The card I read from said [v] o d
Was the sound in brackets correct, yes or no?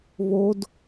no